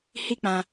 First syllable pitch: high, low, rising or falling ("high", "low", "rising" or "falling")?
high